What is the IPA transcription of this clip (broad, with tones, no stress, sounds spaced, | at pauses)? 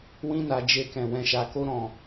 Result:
w ĩ˧ n a˧ d͡ʒ e˧ k ɛ̃˨ w ɛ̃˨ ʃ a˨ k o˧ ɾ ɔ̃˨